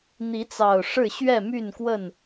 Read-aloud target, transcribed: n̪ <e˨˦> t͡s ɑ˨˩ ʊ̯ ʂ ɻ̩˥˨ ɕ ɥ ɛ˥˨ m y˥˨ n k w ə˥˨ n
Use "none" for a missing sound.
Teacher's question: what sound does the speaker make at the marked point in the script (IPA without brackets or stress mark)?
i˨˦